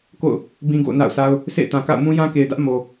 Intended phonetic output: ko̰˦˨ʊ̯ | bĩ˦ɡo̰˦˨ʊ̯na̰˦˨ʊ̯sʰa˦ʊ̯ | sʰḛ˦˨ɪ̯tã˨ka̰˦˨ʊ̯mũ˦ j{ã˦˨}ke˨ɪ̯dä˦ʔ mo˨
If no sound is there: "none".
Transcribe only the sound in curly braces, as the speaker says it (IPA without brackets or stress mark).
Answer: ã˦